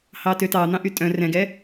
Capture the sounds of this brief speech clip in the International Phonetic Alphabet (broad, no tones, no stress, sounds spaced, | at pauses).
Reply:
h ɑ t ø t ɑ n̪ ɑ̃ ʔ y tʼ œ̃ r ɛ̃ ɡ ɛ